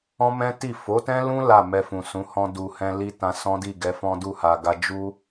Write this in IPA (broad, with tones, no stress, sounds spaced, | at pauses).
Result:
ɔ̃˦ m ɛ̃˦ t i˦˨ f o˨˦ t ɛ̃˦ l ũ˦ l a˦˨ m ɛ˧ f ũ˨ s ũ˨˦ h ɔ̃˧ d u˨ h ɛ̃˧ l i˧ t ã˧ s ɔ̃˦ d i˦˨ ɡ ɛ˨˦ f ɔ̃˦ d u˦˨ h a˨ ɡ a˧ d͡ʒ u˦